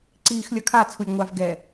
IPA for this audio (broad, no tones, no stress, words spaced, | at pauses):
ǀiːxlʲʌkʰa t͡sʰulʲŋʷav ɡɛ